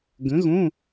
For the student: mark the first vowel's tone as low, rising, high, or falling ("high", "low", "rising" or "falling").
rising